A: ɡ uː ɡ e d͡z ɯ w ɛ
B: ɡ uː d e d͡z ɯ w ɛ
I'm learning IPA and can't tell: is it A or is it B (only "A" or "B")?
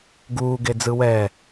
A